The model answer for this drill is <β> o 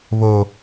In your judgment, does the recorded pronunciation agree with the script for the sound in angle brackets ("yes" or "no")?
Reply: yes